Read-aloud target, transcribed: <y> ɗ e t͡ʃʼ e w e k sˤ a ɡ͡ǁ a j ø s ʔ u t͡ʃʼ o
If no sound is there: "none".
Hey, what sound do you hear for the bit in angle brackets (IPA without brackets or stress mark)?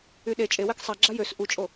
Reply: y